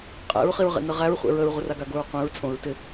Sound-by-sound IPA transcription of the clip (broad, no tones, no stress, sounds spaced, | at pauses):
qʼ ḛ ɹ χ i ɹ ʁ ḛ n ə ʁ æ ɹ χʷ ḛ ɹ ə ɹ ʁʷ ə r a ɡ a ɡ o ɹ qʷ ẽ ɹ t͡sʼ õ ɹ t ɪ